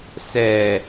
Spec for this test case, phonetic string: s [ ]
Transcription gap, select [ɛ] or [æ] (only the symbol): ɛ